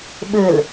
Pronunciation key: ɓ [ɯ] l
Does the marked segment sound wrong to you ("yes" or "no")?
no